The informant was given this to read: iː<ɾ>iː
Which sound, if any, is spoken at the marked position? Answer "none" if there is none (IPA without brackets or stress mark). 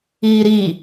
ɾ